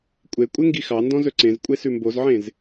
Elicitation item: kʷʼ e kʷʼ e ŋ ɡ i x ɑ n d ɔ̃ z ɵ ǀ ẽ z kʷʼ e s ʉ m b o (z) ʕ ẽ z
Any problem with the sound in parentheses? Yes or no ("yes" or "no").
no